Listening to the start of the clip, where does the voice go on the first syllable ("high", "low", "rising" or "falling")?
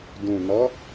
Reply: low